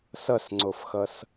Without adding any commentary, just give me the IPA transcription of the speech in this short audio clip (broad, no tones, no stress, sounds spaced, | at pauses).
s ʌ s ŋ͡ǀ o f x ʌ s